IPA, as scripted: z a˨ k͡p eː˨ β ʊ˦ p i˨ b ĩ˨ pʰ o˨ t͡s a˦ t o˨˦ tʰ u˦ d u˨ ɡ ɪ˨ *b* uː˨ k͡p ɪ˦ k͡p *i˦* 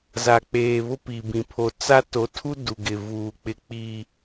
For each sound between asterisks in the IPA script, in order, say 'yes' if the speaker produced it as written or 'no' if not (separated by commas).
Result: no, yes